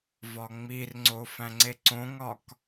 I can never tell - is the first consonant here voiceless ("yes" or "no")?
no